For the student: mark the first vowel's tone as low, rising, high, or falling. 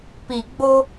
low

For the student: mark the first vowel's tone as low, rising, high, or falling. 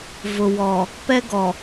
low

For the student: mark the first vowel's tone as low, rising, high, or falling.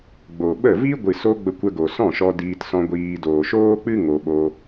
low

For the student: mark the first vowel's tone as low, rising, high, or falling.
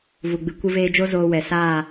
low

